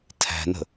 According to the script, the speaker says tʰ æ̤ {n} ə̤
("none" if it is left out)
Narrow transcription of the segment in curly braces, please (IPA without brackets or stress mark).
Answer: n